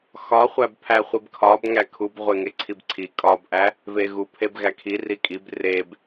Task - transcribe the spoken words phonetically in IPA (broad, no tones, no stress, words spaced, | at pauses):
xɒχʷæb pʰæχʷibkʰɒb ŋækʰub ʁʷeŋeǀʰibǀʰi kʼɒbʔæ | veɣu pʰebɣækʰi rikʼib reb